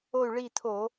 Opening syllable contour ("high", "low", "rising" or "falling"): falling